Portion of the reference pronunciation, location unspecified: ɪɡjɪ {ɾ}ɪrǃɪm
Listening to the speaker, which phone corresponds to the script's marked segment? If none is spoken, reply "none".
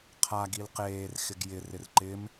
r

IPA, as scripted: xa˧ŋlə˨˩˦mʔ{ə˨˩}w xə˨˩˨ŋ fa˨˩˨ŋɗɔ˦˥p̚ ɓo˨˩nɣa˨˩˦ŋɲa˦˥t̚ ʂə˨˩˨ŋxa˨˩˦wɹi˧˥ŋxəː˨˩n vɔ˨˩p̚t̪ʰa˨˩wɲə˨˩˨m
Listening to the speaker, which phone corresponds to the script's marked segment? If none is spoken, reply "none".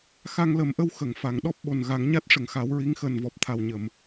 ə˧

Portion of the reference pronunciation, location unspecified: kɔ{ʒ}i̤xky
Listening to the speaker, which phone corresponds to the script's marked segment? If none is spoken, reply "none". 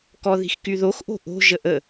ð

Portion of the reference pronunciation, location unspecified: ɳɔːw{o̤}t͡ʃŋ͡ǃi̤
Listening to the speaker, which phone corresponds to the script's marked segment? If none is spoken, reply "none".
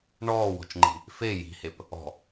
ɔ̤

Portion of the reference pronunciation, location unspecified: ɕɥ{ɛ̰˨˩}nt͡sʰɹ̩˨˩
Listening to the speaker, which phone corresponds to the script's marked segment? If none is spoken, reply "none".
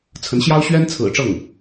ɛ˥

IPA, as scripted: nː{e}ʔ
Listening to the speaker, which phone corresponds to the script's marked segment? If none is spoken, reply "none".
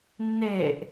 e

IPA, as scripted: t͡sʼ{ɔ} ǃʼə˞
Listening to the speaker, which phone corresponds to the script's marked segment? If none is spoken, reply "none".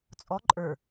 ɔ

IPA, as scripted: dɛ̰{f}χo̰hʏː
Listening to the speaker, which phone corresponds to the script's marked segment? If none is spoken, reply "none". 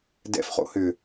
f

